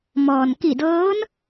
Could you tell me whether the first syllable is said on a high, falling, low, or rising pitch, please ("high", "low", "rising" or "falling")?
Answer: low